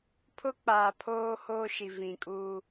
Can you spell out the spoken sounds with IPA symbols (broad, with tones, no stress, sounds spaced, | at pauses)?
pʰ ʊ˦ k͡p aː˨ pʰ oː˦ h oː˦ ʃ i˨ v ĩ˨ kʼ u˦